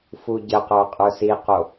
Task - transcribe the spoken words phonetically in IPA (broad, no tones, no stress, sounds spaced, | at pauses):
f u ɟ ə q ə˞ qʼ ə˞ s i q o